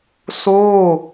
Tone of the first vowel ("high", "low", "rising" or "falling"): falling